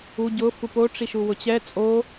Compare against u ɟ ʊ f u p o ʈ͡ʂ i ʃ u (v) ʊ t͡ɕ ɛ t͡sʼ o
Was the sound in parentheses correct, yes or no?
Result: no